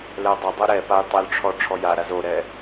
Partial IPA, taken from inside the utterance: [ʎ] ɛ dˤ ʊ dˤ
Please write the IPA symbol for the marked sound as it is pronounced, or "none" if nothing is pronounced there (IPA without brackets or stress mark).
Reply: l